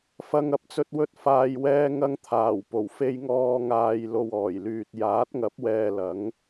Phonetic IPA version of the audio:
f ɐ˧ ŋ ɐ˨˥ p̚ t͡s ɵ˧ t̚ w ɵ˧ t̚ f aː˨ j w ɛː˧ ŋ ɐ˧ ŋ t̪ʰ aː˨˩ w p o˨˩ w f e˧ j ŋ ɔː˧ ŋ aː˨ j l o˨ w ɔː˨˩ j l yː˨ t̚ j aː˨˥ t̚ ŋ ɐ˨˥ p̚ w ɛː˨ l ɐ˨˥ ŋ

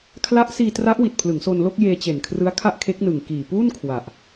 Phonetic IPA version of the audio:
kʰ l a˦˥ ʔ s iː˧ t r a˦˥ ʔ w i˨˩ t̚ pʰ l ɯ˩˦ ŋ s o˧ n l o˥˩ k̚ j eː˧ t͡ɕ e˨˩ n kʰ r ɯ˦˥ a̯ kʰ a˥˩ ʔ kʰ e˦˥ k̚ n ɯ˨˩ ŋ k iː˨˩ p uː˥˩ n kʰ w a˨˩ ʔ

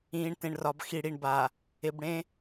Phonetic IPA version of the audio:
ĩː˨ ɳ t ẽ˨ ɳ r ɒ˨ b x i˨ ɽ i˨ ɳ b a˨ | ɪ˨ b ɽ ẽ˦

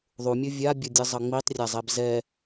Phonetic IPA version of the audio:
ðˤ u mʲ ɯ vʲ a bʲ ʌ dʲ ɯ zˤ ʌ ŋ͡m i tˤ rʲ a zˤ ɛ b z ɛ

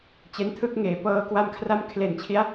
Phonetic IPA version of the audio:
t͡ɕ e˦˥ n tʰ ɯ˦˥ k̚ ŋ eː˩˦ p ɤː˧ k w a˧ m kʰ r a˦˥ m kʰ l e˨˩ n t͡ɕʰ i˦˥ a̯

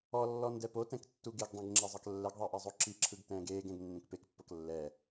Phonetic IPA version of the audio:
ɔ lː ɔ n d ɛ p o t ɛ̃ k tː u ɡ e ɡ dˤ ẽ ɡ ŋ͡ǁ ɛ zˤ ɤ k lː ɛ ɡ ðˤ ɛ ʔ ɛ zˤ o ǁ i ǁʰ ɯ ɡ t ɛ̃ː ɡ eː ɡ ɛ̃ ɡ nː ẽ k p e k pː ɤ k lː ɛ

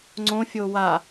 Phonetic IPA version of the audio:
ŋ͡ǀ õ fʲ o w a

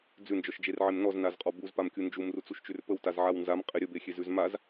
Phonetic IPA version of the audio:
d͡z ʉ n d͡ʒ ɔ ʃ d͡ʒ e r ʕ e m n ɔ z n a z qʼ ɔ b u z p a m kʲ u n d͡ʒ u m r u t͡s u ʃ t͡ʃ ʉ r p ə w t a z ʕ a w n z a m qʼ e ɾʲ ə b e xʲ e z ʉ z m a z

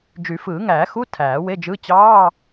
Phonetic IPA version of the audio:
d͡ʒ y˨˩˦ f ɯː˨˩˦ ŋ æː˨˩˦ x u˧˥˧ tʰ æː˨˩˦ w e˧˥˧ d͡ʒ ɯ˧˥˧ t͡ɕ ɑː˧˥˧

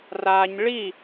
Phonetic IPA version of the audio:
r a ɲ ɭ i

